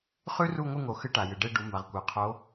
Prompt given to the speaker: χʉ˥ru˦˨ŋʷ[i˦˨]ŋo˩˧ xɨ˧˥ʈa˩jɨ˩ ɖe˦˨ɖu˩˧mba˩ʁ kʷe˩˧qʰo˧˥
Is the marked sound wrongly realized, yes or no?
yes